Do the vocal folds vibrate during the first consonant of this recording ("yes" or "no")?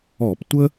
no